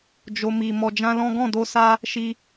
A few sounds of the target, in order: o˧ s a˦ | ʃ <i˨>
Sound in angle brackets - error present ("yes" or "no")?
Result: yes